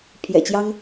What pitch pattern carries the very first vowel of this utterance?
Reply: low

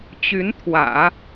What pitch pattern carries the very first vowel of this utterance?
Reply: rising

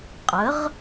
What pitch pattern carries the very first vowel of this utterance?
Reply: rising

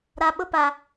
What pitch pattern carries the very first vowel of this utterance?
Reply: low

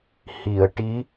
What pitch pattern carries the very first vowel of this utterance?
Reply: low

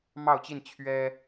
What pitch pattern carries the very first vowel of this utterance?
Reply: falling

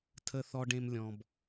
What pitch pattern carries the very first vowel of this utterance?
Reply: low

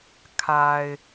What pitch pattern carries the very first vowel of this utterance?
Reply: low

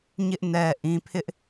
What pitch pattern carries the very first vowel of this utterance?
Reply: high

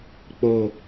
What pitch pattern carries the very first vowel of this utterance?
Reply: low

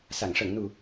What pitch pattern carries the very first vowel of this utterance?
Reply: low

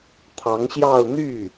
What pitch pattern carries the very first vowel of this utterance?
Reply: rising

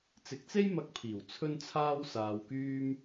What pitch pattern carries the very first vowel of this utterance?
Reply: low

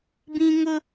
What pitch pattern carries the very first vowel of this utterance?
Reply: high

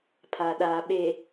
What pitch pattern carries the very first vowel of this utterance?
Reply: low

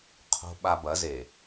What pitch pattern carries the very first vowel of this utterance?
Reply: low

